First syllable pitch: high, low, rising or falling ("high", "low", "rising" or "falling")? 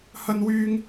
high